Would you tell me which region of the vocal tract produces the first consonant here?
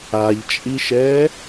palate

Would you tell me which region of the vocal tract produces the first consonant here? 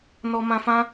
tongue tip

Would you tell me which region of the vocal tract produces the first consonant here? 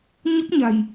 palate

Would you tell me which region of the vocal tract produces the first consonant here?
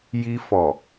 palate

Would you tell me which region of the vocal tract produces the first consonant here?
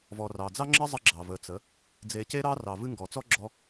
lips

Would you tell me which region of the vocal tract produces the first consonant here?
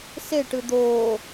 tongue tip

